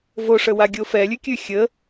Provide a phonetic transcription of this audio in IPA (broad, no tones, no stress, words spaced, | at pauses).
voʂəwaɡʲo fɛlʲʉkʲʉ xʲə